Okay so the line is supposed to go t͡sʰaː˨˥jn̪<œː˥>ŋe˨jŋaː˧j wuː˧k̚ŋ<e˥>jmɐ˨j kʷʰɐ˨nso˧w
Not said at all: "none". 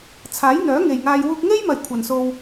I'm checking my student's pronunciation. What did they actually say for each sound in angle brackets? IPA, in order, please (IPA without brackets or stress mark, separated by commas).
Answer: œː˨˥, e˥